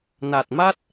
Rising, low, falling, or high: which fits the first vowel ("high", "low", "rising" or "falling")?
low